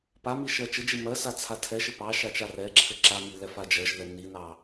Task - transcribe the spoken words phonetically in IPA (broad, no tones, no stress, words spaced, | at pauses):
pami ʃɜt͡ʃɘd͡ʒi mɜsa t͡sʰatʰɛʃɘ pɑ ʃat͡ʃarɛǁʰɘ ǁami lɛfad͡ʒɜʒðɛ ninɑ